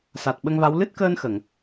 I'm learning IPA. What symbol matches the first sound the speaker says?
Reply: s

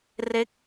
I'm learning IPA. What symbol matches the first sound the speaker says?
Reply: r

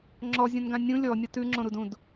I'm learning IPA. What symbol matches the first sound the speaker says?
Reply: ŋ͡ǁ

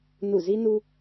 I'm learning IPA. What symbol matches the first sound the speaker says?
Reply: n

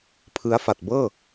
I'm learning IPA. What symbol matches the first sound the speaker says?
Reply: pʰ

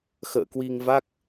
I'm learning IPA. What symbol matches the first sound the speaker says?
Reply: x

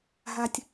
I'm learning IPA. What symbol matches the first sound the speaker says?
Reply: ɦ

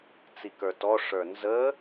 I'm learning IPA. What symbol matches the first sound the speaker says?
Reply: t͡s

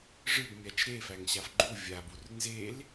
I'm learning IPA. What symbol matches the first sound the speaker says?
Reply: ʐ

